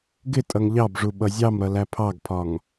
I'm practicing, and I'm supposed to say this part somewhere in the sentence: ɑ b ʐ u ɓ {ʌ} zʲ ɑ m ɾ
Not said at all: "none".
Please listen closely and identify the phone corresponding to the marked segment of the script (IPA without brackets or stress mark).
ʌ